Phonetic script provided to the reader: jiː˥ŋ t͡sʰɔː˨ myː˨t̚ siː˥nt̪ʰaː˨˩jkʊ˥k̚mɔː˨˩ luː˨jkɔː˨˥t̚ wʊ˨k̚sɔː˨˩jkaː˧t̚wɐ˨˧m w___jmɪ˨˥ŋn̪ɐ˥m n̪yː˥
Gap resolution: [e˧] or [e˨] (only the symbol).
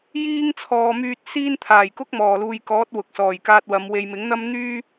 e˨